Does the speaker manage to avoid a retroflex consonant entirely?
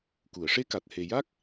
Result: no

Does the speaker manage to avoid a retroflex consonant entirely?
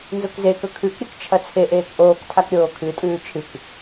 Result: yes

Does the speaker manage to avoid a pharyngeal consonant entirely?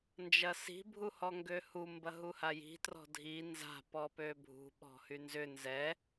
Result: yes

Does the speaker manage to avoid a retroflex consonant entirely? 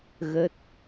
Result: yes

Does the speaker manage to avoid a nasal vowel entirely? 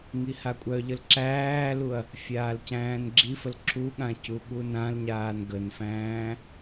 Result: no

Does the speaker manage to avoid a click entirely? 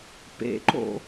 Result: no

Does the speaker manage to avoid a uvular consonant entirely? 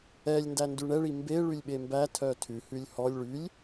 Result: yes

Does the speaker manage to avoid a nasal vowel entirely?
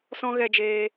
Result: no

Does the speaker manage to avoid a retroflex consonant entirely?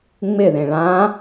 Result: no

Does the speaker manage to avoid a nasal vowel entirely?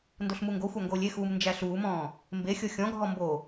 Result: no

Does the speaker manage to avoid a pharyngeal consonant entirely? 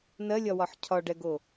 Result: no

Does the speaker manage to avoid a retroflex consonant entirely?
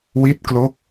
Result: yes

